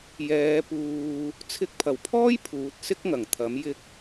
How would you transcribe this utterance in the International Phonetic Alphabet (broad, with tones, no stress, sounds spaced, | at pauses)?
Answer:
j ɛː˨˧ p uː˧ | t͡sʰ ɪ˧ k̚ pʰ ɐ˨˩ w pʰ ɔː˥ j pʰ uː˨˥ t̚ s ɪ˥ k̚ ŋ ɐ˨˩ ŋ t̪ʰ ɐ˨˥ m j ɪ˧ k̚